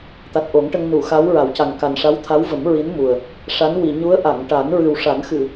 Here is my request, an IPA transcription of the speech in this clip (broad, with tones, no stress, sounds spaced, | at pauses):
t̪ a˨˩ t̚ ʔ o˨˩˦ ŋ ʈ ə˧ ŋ n u˨˩˨ x a˧˥ w ɹ a˨˩˦ w c a˨˩ ŋ k a˨˩ n ʂ a˧˥ w t̪ʰ a˧˥ w v ə˨˩˦ m ɹ i˧˥ n m u˨˩ ə̯ | ʂ a˧˥ n w i˨˩˨ ɲ u˧˥ ə̯ ʔ a˨˩˨ ŋ ʈ a˨˩˦ n ɹ ɨ˨˩ w ʂ a˨˩˦ n x ɨ˨˩˨